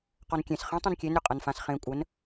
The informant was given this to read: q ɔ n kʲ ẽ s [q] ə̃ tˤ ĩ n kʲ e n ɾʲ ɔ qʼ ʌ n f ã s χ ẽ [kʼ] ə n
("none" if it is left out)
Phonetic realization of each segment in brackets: χ, kʷʼ

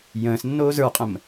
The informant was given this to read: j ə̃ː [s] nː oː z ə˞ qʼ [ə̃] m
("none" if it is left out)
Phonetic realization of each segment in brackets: s, ə̃

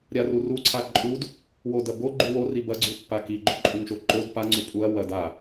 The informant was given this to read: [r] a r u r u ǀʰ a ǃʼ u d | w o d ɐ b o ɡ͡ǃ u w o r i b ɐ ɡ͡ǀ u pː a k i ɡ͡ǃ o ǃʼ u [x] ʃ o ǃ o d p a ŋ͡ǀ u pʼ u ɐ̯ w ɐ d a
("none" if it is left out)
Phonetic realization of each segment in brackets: ɾʲ, ŋ

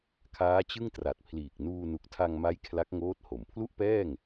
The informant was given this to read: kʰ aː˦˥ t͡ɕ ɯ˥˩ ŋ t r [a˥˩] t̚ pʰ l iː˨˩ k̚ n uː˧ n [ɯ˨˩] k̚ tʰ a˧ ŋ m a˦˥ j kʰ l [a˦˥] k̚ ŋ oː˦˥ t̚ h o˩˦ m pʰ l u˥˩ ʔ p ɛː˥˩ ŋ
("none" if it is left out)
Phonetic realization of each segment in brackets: a˨˩, u˨˩, a˦˥

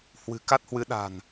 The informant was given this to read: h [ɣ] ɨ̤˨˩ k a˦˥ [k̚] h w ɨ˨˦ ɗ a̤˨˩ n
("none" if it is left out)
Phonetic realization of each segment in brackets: w, t̚

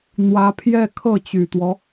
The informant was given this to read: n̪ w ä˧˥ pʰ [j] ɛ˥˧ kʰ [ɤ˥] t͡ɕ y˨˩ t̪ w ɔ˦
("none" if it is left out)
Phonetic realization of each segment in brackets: j, ɤ˥˩

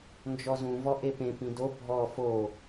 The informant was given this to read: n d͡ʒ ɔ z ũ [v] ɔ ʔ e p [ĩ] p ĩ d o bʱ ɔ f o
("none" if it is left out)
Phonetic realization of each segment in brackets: v, ẽ

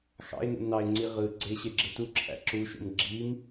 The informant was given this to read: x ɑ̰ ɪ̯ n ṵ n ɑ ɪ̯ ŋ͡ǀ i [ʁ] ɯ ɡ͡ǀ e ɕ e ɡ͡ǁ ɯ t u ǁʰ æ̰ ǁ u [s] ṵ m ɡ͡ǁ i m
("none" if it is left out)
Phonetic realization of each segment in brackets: ʁ, ʃ

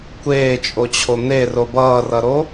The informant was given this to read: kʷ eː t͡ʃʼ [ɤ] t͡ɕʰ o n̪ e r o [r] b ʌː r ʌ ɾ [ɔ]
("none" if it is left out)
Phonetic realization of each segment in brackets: o, none, o

